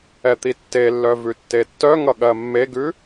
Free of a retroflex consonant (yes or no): yes